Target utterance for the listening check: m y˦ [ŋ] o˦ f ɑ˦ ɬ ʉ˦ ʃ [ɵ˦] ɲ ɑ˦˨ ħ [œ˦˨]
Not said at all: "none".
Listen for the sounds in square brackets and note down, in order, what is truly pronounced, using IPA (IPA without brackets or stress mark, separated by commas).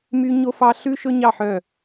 ɲ, ɵ˦, œ˦˨